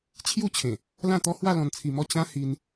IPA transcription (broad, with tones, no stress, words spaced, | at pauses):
t͡ɕʰju˥˧t͡ɕʰẽ˨˩ | lã˥˧t̪ɔ˦hwa˥˧ lɔ̃˧nt͡sʰi˧mɔ˥˧ t͡ɕã˦hi˧n